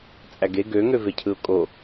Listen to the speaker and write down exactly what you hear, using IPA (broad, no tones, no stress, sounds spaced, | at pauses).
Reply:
t͡sʼ æ ɡ e ɡ ø ŋ ø v e cʰ ɯ ʊ̯ kʼ o